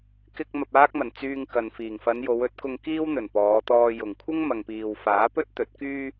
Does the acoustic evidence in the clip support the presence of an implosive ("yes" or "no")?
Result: no